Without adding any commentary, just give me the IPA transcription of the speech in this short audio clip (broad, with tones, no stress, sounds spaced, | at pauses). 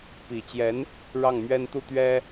p i˨˩ t͡ɕ j ɛ˧˥ n | ɻ ɑ˥˩ ŋ m ɥ ɛ˥ n t̪ u˥˩ t̪ ɥ ɛ˥